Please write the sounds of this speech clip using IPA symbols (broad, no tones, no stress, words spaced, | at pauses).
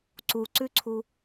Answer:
ǀuǀʉǀʰu